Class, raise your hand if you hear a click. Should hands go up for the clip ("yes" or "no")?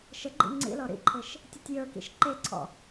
yes